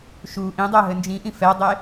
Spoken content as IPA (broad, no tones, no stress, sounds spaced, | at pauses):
ʃ u ʔ ĩ dˤ ɤ ɦ ɘ n d͡ʒ ĩ ʔ ĩ f ɛ dˤ e